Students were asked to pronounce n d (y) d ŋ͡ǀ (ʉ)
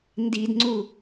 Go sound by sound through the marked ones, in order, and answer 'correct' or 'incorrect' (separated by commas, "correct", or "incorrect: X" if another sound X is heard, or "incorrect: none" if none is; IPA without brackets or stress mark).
incorrect: i, incorrect: u